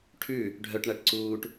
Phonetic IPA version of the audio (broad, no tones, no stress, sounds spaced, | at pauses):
ʈʰ ʉ | ɖʱ œ ʈ ɳ æ ʈ ǀ uː ʈ